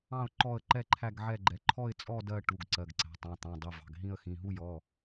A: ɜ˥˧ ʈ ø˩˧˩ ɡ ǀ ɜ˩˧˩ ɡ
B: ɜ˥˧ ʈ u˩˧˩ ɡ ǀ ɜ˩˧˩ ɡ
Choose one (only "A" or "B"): B